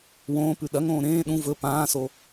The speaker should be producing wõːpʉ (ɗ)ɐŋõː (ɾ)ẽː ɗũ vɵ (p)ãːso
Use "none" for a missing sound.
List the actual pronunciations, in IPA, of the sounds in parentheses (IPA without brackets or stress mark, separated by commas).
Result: ɗ, ɾ, p